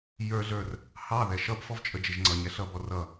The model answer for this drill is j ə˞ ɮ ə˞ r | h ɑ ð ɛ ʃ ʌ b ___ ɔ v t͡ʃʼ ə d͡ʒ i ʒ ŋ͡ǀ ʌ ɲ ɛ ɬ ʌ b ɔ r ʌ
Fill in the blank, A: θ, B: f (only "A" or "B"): B